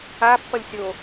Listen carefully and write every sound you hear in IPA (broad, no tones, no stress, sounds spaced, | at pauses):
a pː ʌ lʲ sʲ o